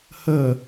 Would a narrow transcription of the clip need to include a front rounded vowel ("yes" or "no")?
no